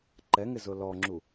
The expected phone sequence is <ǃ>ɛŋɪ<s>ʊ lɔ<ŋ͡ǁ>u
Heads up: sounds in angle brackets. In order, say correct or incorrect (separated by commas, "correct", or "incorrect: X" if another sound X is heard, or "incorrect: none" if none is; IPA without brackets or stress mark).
correct, incorrect: z, correct